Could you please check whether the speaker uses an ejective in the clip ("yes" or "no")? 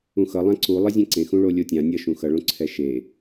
no